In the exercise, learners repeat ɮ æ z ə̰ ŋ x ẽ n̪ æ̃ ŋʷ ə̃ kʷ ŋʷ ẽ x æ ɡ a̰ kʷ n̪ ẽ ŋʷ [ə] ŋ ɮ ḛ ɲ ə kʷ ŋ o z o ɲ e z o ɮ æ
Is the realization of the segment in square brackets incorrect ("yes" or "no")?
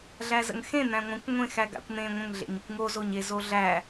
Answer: yes